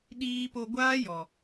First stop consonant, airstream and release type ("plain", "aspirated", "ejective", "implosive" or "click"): implosive